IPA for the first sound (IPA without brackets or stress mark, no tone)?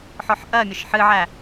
ħ